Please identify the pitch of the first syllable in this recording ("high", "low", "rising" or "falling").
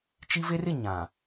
high